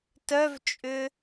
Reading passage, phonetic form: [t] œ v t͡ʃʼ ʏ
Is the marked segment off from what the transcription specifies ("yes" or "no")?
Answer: no